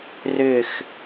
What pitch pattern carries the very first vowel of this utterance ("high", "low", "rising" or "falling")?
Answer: falling